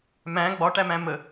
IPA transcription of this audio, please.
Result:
m æ̃ ɡ͡b ɒ ʈ æ m æ̃ m ə

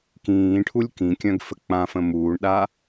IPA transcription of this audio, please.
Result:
k ĩː ʈʰ u lʲ k ĩ kʲ œ̃ ɡ f ə k͡p ã f ə̃ m uː ɳ ɗ a

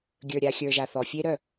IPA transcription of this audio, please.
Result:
ɡʲ ə˞˨ ɾʲ a˨ xʲ ə˞˨ ʒ a˨ θ ɔ˨ fʲ e˦ ɾ œ˦˨

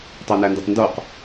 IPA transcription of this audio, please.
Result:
tˤ æ n æ n d e tˤ n d o q

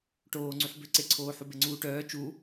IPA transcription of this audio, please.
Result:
ʈ oː ŋ͡ǀ y ħ b ø ǀ e ǀʰ oː ħ u b e ŋ͡ǀ uː ʈ œː t͡ʃ u

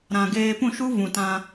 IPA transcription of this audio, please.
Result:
ɾ ã˨ ɡ eː˧ p ũ˦˨ ʃ u˦ v ũ˨ t ã˧

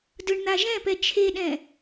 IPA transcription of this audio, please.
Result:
d ɯ ɳ n̪ a ʒ ɛ̃ p ɛ t͡ʃʰ e ɗ ɛ̃

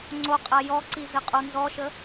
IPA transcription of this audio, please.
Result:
ŋ͡ǀ o qʼ a j ɔ ǀ i z ɘ qʼ o n z ɔ ʃ ə

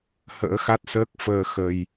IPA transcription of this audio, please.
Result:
h ə̰ː˧˥ x a˦˥ t̚ s əː˦˥ k̚ f əː˧ x ə˧ j

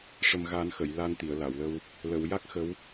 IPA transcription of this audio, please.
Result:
ʂ ə˨˩ m ɣ a˨˩˦ n x ə˨˩˨ j l a˧ n t̪ i˨˩˨ ə̯ l a˨˩˨ w l ə˧ w | l ə˨˩˨ w j a˦˥ k̚ x ə˧˥ w

